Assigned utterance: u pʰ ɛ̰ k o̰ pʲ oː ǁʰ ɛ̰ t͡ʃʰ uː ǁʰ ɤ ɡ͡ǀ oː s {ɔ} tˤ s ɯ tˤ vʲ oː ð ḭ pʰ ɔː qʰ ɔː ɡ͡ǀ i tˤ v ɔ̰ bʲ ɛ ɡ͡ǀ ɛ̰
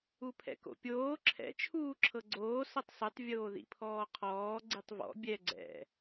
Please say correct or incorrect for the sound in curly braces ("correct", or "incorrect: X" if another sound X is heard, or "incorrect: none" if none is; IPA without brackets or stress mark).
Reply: incorrect: ɤ